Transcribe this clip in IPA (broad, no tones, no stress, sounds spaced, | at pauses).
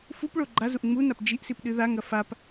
f u p ɭ o ɡ͡ǃ a z u ʔ ŋ͡m u n a p d͡ʒ i ʔ s i p ɗ ɨ ð a ŋ ɐ f a p